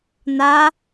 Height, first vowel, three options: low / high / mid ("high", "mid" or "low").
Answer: low